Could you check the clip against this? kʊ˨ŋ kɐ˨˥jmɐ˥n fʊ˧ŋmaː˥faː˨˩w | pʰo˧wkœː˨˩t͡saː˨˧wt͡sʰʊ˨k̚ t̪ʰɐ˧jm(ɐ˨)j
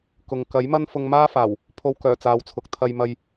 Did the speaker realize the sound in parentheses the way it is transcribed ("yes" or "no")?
no